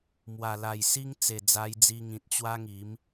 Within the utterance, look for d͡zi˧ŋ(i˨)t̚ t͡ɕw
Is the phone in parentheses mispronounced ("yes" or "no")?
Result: yes